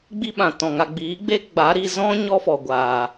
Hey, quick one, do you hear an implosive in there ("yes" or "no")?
yes